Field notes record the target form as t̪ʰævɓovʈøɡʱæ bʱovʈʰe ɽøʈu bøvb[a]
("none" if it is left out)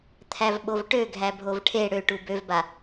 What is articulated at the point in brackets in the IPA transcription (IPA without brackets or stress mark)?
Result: a